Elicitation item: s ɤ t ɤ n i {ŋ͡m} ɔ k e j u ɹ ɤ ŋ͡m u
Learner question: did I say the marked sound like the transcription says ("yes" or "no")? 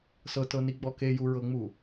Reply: no